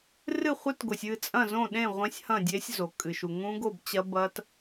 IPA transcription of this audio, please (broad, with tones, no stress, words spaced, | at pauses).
rɨ˥˨χʷɨ˦˥tɡo˩sʲ ɨ˥˨t͡sʼɐ̃˥˨zõ˥˨ ɗẽ˥˨ ʁʷẽ˦˥sʲhɐ̃˥˨dʲe˦˥sʲ zo˩ kʼɨ˩ʃu˩ ŋũ˦˥ɡo˥˨bt͡ɕɐ˦˥ bɐ˦˥t